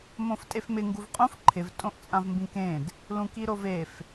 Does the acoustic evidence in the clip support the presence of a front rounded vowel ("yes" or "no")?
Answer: no